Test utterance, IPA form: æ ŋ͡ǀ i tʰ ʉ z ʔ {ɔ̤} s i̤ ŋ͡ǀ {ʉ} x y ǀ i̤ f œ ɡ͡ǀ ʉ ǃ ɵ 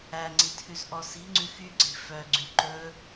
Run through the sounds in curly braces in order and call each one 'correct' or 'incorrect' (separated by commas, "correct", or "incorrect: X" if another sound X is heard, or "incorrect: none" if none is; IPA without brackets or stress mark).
incorrect: ɔ, correct